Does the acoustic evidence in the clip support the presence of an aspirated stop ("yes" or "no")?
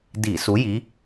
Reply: no